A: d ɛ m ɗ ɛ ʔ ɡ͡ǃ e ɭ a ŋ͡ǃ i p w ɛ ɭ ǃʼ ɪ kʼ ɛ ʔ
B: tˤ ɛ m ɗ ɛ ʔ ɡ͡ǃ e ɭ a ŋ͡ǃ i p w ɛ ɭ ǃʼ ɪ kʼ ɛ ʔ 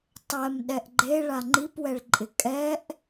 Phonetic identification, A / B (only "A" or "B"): B